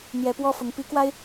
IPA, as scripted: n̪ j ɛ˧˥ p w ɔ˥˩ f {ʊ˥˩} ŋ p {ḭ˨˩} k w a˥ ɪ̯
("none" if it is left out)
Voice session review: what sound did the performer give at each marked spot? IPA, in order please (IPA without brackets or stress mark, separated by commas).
ʊ˧˥, i˧˥